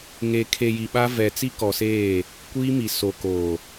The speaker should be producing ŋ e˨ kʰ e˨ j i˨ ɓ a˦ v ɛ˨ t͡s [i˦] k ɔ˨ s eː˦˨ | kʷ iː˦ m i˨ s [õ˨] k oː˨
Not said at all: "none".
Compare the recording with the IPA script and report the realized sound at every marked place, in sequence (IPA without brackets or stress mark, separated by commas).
i˦, o˨